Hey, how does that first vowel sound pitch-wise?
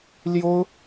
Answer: high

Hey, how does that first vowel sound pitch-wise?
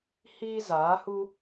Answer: high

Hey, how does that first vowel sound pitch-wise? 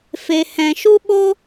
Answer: low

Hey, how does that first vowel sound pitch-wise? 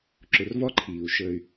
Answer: low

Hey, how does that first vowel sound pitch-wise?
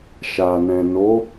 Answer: low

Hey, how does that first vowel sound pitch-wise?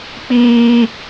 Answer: high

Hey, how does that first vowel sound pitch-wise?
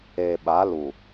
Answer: low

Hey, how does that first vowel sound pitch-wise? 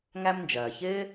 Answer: high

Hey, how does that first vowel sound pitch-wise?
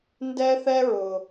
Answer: high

